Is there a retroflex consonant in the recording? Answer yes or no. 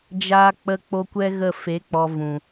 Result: no